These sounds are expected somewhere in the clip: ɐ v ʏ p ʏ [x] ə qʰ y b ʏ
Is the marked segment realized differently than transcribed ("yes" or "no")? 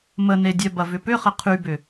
yes